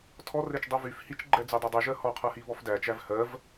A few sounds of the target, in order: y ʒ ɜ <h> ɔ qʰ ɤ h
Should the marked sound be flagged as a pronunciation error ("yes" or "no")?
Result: no